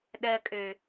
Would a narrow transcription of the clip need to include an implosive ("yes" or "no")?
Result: yes